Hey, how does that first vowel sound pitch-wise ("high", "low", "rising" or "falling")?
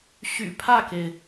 low